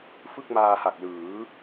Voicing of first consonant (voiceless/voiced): voiceless